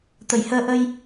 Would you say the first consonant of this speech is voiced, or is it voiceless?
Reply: voiceless